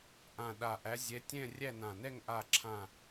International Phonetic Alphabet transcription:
ʔ ã˨˩ ɗ a˨˩ ʔ æ˨˦ zʲ ɛ˨˦ tʲ ɛ̃˦˨ rʲ æ˦˨ n ã˨˩ n ɛ˦˨ ŋ ʔ a˦˨ ǁʰ ã˦˨

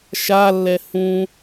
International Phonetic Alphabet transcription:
ʃ a lː ɛ h ũ

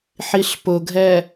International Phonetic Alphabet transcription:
ħ i ɬ p ʊ ɡʱ ɛ

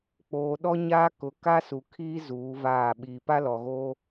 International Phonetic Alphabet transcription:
k͡p oː˨ ɗ ɔ˦ ɲ aː˦ k ʊ˨˦ k a˦ s u˨ kʰ iː˦ z uː˨˦ v aː˦˨ ɓ iː˨ p a˦ l ɔ˨ ɣ oː˦

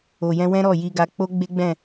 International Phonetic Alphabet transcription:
o˨ j ɛ̃˧ w ɛ̃˦ ɾ ɔ˦˨ j i˧ ɡ a˧ k͡p o˦ ɡ͡b e˦ ɡ͡b ɛ̃˦˨

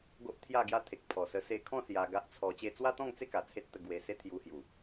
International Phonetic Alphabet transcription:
ɡ o˦ ʔ t̪ʰ j a˥˧ ɡ j a˦ t̪ʰ e˨ k̚ pʰ ɔ˨˩ s ə˧ s e˧ kʰ ɔ̃˥˧ s j a˧ ɡ a˦ ʔ t͡sʰ ɔ˧ t͡ɕ e˧ t͡s w a˦ t̪ ɔ̃˥˧ ŋ t͡s e˥˧ k a˨˩ t͡sʰ e˦ t̚ t̪ ə˧ ɡ w e˧ s e˦ t̪ʰ j u˧ h j u˨˩

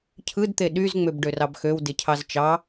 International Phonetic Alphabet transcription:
cʰ ɯ d t̪ e ɗ y z ŋ͡m ø b ɖ ø r ɑ b x ø w d e cʰ ɑ z t͡ʃ ɑ

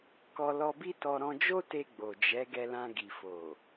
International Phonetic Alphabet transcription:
k ɔ˧ l ɔ˧ b i˦ t ɔ˧ ɾ ɔ̃˧ d͡ʒ o˦ t e˧ ɡ͡b o˨ d͡ʒ ɛ˨˦ ɡ ɛ˧ l ã˧ ɡ i˨ f o˨

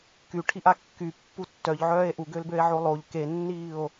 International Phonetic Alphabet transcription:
k y ʈʰ i ʔ a kː y pː u tː œ ʎ ʕ œː e̯ ʔ u ɡ ø l b ø e̯ ʕ o lˠ o ʎ k e nː iː o̯

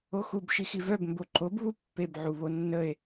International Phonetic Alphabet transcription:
o x u b ʃ i x i v œ b m b o ǃ o b β u pː e b ʕ u β o nː ə e̯

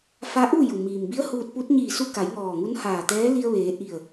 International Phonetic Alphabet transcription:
f a˧˥ ʔ u˥˨ j u˩ m iː˩ m b i˧˥ ə̯ h uː˧ t̚ p u˧˥ t̚ ɲ iː˧˩ s u˧ k a˩˧ j ŋ ɔː˧˩ ŋ u˧˥ n h aː˧˩ t̪ ɛː˧˥ l i˧ ə̯ ʋ eː˩˧ ʔ i˧˩ ə̯

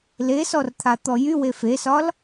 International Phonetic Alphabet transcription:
l e s ɔ r t̪ʰ a t̪ ɔ j y w e f e s ɒ l

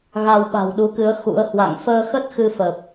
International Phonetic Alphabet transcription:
ɣ a˧ w ɓ a̤˨˩ w ɗ u˨˦ k ɨ˨˦ ə̯ x ṵ˧˥ ə̯ h w a̰˧˨ ŋ f əː˧ x ə˦˥ t̚ x ɨ˧ f ə˨˩ p̚

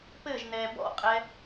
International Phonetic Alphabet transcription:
p ɘ ʒ n ɛ b ɔ̰ qʼ ɛ

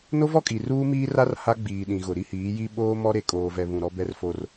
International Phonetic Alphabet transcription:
n o˦ v ɔ˦ kʼ i˨ r uː˦ m iː˦ r a˦ r h a˦ ɡ͡b iː˨ ɗ ĩ˨ ɣ ʊ˨ ɾ i˦ h iː˨˦ j i˦ ɓ oː˦ m ɔ˦ ɾ e˨ kʼ oː˨ v ɛ˨ β ũ˨ ɾ ɔ˦ b ɛ˦ r f o˦ r

